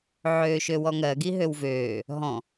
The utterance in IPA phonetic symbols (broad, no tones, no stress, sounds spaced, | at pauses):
ʕ øː ʃ ø w ɔ ŋ ɜ ɡ i ɦ ø w v øː | ɦ ɔ̃